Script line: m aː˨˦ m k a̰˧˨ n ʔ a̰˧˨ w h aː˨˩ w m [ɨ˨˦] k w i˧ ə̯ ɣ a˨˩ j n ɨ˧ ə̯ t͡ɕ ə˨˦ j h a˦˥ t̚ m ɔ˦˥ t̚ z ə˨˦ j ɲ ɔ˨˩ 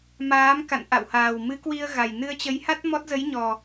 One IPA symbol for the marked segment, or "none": ɨ˨˦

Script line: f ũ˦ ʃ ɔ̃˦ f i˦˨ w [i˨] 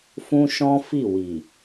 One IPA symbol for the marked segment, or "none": i˨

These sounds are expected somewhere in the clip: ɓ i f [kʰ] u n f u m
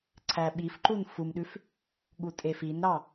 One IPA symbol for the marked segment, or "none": ǃ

